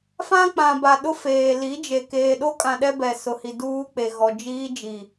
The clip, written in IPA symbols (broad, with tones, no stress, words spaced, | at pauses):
fã˦k͡pã˨ba˨ ɗʊ˦feː˨ li˨˦d͡ʒe˨ keː˨ɗo˦kʼã˨ ɗɛ˦bɛ˨sʊ˨hi˨ duː˦k͡pe˨ɣɔ˨ d͡ʒiː˦ d͡ʒi˨